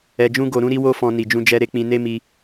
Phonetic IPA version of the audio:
ɛ˧ d͡ʒ ũ˦ ɡ o˧ ɾ ũ˦ ɾ i˦ w o˦ f ɔ̃˧ n i˧ d͡ʒ ũ˦ d͡ʒ ɛ˦ ɾ e˦ k͡p ĩ˧ n e˦ m i˧

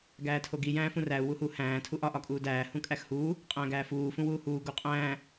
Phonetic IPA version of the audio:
ɡ æː tʰ o ɡ i j æ̃ː f ũ r æ u̯ w u h u h æ̃ː tʰ u ʔ ɒ ʔ ɒ kʼ uː d æː h ũ kʼ æ x h uː | qʼ æ̃ː ɡ æː f uː f ũ w uː h uː ɡ o qʼ æ̃ː

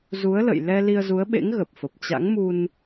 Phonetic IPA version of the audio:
z u˨˦ ə̯ l ə̰˧˨ j l ɛ˧ l i˧ ə̯ z u˨˦ ə̯ ɓ ḛ˧˥ ŋ ɣ ə˨˩ p̚ f ə˨˩ p̚ t͡ɕ a̰˧˥ ŋ m u˧ n

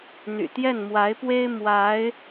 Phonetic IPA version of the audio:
n̪ y̰˨˩ t̪ j ɛ˥˩ n m w a˧˥ ɪ̯ p w e˥ ɪ̯ m w a˧˥ ɪ̯

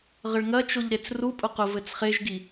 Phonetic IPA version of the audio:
ʁ ə ɭ ŋ ɐ t͡ʃ o ʎ ɾ e t͡s r u pʼ ʊ q ʊ v ɘ t͡s χ e ʒ ɡ i

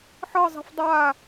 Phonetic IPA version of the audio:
ħ ɤ zˤ i̤ f dˤ a

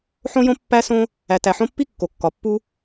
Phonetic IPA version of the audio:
ħ õ˦ j õ˦ pː æ˦ s õ˦ | æ˨ t æ˨ ħ õ˦ pː i˥ kː o˩ kː ɒ˩ pː u˦

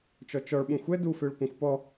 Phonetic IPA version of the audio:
t͡ʃ ɔ t͡ʃ ɔ ɭ ɓ ũ xʷ ɛ d u f ø ɭ kʷ ɛ̃ xʷ p ɔ

